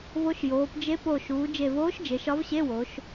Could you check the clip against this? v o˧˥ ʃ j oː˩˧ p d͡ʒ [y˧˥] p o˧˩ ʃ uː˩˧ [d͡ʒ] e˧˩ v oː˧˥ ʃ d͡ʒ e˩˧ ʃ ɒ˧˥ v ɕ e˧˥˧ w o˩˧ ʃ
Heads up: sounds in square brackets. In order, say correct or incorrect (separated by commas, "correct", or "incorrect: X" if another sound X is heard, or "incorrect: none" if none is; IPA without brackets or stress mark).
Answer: incorrect: e˧˥, correct